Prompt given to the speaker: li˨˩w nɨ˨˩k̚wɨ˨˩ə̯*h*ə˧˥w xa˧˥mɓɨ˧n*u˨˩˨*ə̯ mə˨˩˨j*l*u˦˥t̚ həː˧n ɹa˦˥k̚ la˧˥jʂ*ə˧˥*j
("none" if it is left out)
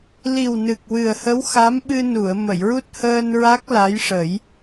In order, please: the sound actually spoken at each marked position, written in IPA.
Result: h, u˨˩˨, ɹ, ə˨˩˦

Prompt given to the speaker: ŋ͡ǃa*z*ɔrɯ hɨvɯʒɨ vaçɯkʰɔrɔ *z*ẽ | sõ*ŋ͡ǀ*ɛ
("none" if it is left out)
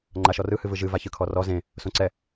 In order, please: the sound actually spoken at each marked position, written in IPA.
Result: ʃ, z, ǀ

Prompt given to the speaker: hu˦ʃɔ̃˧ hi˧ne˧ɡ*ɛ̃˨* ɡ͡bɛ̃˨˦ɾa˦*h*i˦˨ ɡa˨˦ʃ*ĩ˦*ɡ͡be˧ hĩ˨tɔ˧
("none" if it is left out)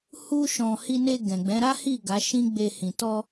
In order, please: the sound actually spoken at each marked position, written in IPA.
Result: ɛ̃˨, h, ĩ˦

